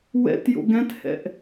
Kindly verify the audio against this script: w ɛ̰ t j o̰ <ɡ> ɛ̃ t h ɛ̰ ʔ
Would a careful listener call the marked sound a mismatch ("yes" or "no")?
no